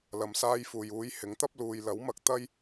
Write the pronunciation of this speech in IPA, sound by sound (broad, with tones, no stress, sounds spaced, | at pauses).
l ɐ˨ m s aː˧ j f uː˨ j uː˨˥ j h ɪ˨˥ ŋ t̪ ɐ˥ p̚ l uː˨ j l ɐ˨˥ w m ɐ˧ k̚ t̪ ɐ˥ j